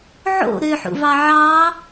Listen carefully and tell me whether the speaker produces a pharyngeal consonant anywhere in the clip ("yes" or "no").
yes